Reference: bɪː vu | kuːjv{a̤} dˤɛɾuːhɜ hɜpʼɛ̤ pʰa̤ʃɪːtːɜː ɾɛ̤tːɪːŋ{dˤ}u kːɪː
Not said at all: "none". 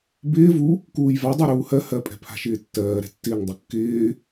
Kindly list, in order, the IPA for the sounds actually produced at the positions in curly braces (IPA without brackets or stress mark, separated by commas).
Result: a, dˤ